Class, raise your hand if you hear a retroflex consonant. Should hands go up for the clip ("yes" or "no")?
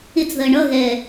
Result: yes